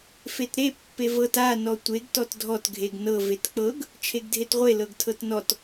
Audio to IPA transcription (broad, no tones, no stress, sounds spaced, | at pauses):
f e t ɾ e pː e v ɤ t a n ɔ tʷ e ɡ t ɔ t dʱ ɔ t ɡʱ e ɡ n ɤ v e t k͡p ɤ ɡ | t͡ʃʰ e ɡ dʱ e t ʁʷ e l ɤ ɡ tʰ ɤ t n ɔ t